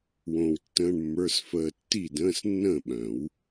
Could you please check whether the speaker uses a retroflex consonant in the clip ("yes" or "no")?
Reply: yes